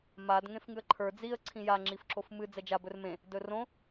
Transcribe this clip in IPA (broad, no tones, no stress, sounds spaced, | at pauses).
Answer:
m a d ŋ ẽ f ŋ ɨ ə̯ ǃʰ ə˞ d͡z i ə̯ ǀʰ ĩ j a ŋ͡ǁ i f ǁ o f m ɨ d͡z ɛ d͡ʒ a b ɵ r m ẽ | d ɵ r õ